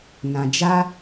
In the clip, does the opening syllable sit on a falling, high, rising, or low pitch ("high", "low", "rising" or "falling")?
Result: low